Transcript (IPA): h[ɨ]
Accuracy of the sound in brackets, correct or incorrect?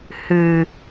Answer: correct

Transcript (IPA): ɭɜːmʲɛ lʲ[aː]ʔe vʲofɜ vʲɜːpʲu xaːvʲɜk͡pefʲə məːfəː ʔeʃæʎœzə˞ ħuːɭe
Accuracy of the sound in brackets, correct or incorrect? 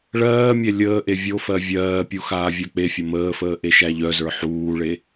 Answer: incorrect: əː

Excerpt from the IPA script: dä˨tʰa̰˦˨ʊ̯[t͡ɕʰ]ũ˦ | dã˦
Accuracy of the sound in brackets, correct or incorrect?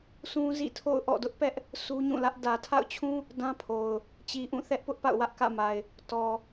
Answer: correct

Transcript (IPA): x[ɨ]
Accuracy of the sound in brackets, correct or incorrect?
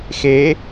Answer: incorrect: e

